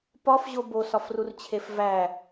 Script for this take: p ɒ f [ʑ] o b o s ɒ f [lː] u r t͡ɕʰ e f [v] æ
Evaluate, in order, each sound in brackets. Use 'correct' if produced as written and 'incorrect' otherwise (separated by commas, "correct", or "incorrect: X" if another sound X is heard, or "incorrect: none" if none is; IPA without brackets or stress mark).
correct, incorrect: r, correct